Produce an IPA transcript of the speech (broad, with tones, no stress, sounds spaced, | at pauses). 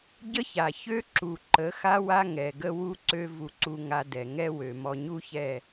ɟ ə˦ ç a˨ ç ø˦ ǁ u˨ ǃ ə˨˦ x a˦ w a˦ ŋ ɛ˨ ɡ ə˦ w u˦ ǀ ø˦ v u˦ ǀ u˦ ŋ a˦ d ɛ˨ ŋ ɛ˦ w ø˨ m ɔ˨ ɲ u˦ ç ɛ˦˨